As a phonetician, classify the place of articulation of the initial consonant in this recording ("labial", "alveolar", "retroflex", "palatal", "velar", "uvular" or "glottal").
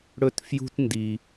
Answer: retroflex